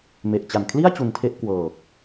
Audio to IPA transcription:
m e˨˩ ʔ t͡ɕ a˨˩ n kʰ l i˥˩ a̯ t͡ɕ u˧ n tʰ e˥˩ ʔ k w ɤː˨˩ k̚

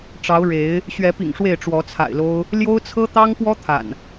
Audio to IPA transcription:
ʈ͡ʂ ɑ˨˦ ʊ̯ ɻ e˨˦ ɪ̯ | ɕ ɥ ɛ˨˦ p ḭ˨˩ ŋ ʂ w e˥˨ ɪ̯ ʈ͡ʂ w ɔ˨˦ t͡sʰ a̰˨˩ ɪ̯ l o˦ ʊ̯ | l j o˦ ʊ̯ t͡sʰ ɤ˦ t̪ ɑ˦ ŋ p w ɔ˦ t̪ʰ a̰˨˩ n

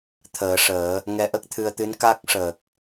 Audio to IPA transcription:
t̪ʰ əː˨˩˦ ʂ əː˨˩˦ | ŋ ɛ˧˥ ʔ ə˦˥ k̚ t̪ʰ ɨ˧ ə̯ t̪ ɨ˧˥ n k a˦˥ k̚ ʂ əː˨˩ k̚

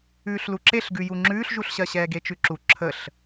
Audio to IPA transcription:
ʉː ɬ l u ǁ e ɬ ɡ ʉ j u ŋ͡ǁ ʉː ɬ ʒ u ɬ ɕ ɜ ɕ ɛː ɡ e t͡ʃ ʉ ǁ u ǁʰ ə ɬ

